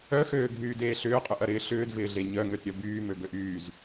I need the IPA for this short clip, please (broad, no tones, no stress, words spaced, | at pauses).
œxøːɡʱyːdeː ɬʏːqʼʏʔɐɾɪː ɬʏːdvɪːɮe ɲœŋøtɾʲœ byːmøbøʔ yːz